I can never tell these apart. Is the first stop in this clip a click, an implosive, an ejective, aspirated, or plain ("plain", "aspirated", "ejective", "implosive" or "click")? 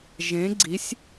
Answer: click